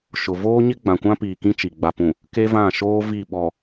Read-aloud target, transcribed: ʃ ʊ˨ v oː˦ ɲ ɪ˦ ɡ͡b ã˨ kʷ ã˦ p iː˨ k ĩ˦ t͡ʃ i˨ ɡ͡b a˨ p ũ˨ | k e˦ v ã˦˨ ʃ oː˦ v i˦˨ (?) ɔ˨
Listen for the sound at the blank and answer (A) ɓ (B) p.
A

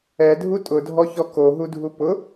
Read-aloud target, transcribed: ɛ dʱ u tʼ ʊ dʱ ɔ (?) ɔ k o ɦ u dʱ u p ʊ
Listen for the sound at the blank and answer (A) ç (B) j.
A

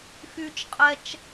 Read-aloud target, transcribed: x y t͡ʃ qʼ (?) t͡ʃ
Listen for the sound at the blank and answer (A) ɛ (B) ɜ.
A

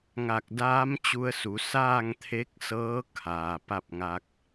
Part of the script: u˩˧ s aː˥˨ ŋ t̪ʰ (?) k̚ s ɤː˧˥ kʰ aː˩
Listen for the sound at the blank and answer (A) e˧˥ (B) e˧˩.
A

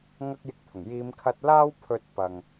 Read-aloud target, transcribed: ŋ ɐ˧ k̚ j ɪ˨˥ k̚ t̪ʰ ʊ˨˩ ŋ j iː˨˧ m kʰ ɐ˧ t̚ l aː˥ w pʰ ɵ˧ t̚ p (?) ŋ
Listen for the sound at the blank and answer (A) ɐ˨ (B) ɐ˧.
A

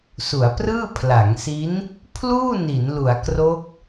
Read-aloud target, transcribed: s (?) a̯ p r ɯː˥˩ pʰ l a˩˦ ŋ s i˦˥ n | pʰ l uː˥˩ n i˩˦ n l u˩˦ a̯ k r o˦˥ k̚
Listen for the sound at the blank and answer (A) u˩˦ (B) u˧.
A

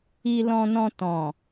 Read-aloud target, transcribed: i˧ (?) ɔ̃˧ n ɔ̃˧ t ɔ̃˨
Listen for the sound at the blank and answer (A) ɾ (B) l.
B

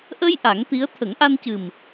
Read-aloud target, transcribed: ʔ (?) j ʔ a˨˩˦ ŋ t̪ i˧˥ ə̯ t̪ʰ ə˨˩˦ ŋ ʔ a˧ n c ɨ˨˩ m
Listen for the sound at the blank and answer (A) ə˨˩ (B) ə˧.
B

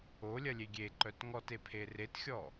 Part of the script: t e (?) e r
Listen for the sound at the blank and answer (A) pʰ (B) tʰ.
A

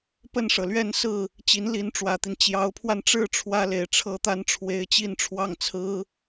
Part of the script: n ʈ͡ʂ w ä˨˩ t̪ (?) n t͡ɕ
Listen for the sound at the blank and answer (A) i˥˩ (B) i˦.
B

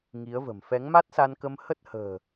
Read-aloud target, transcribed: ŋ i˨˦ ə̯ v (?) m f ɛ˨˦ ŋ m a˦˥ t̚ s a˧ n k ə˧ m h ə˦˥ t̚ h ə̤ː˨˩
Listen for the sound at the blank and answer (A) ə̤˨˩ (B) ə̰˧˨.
A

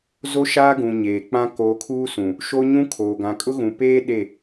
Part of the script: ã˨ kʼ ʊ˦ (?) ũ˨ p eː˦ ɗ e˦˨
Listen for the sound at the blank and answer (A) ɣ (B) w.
A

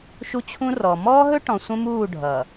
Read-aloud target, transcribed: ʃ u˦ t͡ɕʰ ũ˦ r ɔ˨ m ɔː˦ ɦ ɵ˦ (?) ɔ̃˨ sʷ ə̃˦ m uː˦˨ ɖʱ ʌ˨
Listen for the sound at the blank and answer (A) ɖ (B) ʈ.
B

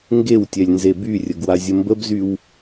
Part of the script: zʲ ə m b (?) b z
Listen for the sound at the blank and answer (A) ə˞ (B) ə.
B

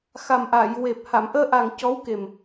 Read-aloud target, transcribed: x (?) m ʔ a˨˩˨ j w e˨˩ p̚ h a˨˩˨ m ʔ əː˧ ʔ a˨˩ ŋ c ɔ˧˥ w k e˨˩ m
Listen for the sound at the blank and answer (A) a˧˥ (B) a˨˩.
B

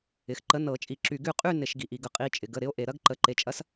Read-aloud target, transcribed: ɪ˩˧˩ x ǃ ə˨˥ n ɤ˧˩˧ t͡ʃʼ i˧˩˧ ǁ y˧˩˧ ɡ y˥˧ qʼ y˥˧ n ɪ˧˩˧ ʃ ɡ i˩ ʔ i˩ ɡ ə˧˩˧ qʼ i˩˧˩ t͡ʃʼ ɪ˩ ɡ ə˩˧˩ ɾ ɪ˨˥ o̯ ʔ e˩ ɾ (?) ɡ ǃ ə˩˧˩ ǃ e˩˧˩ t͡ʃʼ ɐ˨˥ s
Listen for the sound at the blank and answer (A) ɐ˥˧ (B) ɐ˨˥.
A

